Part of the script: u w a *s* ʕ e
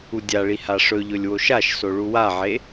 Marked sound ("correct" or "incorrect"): incorrect